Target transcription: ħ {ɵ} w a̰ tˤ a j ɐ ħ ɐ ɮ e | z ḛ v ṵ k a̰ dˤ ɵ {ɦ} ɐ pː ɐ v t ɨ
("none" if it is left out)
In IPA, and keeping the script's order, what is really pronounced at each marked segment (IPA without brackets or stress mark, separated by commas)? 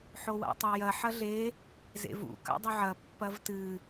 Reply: o, ʕ